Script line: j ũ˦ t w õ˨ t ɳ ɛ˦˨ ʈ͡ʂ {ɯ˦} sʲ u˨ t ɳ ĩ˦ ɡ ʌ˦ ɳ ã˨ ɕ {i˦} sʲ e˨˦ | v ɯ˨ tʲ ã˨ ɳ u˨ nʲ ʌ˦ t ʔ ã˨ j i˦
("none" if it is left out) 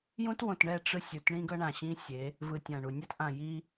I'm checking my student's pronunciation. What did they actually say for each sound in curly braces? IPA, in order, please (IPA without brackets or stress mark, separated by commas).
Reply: ɯ˦, ĩ˦